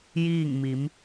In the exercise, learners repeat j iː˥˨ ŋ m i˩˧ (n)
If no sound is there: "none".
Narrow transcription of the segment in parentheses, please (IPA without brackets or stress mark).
m